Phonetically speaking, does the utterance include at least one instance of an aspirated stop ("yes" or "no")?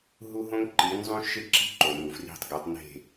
no